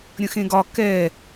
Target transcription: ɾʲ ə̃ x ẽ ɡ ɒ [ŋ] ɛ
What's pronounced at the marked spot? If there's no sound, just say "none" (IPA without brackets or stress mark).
k